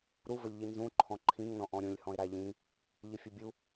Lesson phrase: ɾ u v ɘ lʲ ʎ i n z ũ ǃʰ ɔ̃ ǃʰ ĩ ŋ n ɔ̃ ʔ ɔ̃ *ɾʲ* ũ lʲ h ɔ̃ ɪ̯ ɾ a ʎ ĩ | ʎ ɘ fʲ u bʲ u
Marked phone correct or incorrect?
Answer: correct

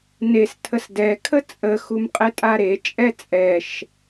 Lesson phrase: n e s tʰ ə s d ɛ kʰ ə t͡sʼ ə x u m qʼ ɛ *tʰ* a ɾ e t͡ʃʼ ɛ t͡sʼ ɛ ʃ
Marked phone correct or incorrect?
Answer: incorrect: tʼ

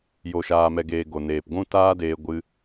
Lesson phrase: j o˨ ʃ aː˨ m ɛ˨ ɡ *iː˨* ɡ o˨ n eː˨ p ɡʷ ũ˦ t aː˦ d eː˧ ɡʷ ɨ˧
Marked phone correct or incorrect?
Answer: incorrect: eː˨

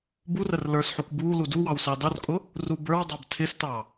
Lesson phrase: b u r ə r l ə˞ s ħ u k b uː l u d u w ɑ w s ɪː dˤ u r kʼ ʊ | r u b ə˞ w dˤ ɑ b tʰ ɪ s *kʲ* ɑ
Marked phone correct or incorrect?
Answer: incorrect: t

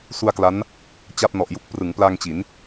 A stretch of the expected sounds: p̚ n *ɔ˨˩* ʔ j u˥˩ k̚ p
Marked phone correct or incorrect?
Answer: correct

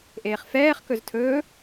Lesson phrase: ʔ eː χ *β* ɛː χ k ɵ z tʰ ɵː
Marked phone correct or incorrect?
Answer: incorrect: f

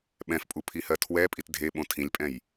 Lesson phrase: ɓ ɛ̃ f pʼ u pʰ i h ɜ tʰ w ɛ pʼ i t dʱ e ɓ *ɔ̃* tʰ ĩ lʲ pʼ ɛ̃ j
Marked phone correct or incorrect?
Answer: incorrect: õ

